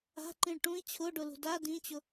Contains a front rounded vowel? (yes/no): no